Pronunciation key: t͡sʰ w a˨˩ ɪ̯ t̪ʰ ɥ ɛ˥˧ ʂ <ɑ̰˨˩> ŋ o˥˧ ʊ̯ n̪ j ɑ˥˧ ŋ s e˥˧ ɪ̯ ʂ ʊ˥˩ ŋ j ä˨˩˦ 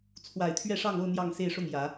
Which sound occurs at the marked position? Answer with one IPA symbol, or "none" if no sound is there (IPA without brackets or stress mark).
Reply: ɑ˥˧